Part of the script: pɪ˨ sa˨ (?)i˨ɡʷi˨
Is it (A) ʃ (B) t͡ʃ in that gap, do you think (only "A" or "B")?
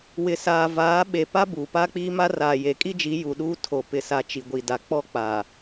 B